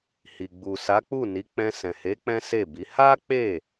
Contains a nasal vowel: yes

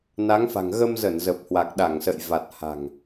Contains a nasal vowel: no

